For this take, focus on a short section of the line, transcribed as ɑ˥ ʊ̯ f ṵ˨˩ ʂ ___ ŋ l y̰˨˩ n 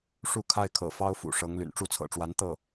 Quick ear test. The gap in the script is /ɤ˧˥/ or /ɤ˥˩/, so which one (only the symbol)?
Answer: ɤ˧˥